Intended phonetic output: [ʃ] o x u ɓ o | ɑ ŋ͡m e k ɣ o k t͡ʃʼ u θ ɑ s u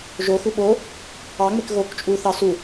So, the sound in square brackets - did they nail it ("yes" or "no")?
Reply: no